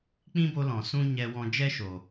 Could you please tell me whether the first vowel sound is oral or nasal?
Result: nasal